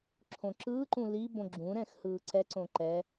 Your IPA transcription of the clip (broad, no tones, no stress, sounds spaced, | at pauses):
ǁʰ õ ǁ ɯː ǃ ũ l i b õ ɡ͡ǁ ũ ɾ ɛ̃ x h ɯː ǀ ɛ ǀ õ ǃ ɛ